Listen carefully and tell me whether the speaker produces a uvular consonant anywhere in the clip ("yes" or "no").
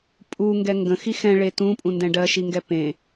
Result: no